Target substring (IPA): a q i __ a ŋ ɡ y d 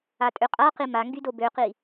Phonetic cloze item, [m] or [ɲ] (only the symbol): m